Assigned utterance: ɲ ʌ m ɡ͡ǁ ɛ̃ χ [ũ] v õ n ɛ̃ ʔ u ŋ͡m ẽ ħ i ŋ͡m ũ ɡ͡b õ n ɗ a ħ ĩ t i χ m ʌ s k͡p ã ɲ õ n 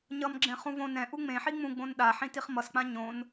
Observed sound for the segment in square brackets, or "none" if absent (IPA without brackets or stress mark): ũ